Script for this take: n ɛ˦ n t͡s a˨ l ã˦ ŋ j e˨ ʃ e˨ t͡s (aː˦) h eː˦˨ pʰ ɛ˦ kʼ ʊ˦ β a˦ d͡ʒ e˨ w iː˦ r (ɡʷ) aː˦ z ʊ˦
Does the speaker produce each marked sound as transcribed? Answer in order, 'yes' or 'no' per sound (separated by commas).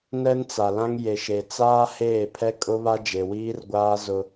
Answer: yes, yes